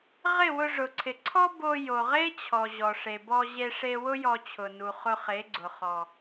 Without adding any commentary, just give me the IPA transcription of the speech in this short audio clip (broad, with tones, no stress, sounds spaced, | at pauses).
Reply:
ʁ ɪ˦˨ w ʊ˧ ʐ ʊ˨ ǀʰ ɪ˨ ǀʰ ɔ˦ b o˧ j o˨ ʁ e˦ t͡ɕʰ ɔ˨ ʑ ɔ˨ ʂ e˨ b ɔ˧ ʑ e˧ ʂ e˧ w ʊ˦ j ɔ˧ t͡ɕʰ ʊ˨ n u˨ χ ʊ˧ χ e˨˦ ɡ͡ǀ ʊ˨ χ ɔ˨